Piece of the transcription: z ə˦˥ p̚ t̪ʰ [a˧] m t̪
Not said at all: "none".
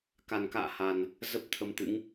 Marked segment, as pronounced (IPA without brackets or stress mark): ə˧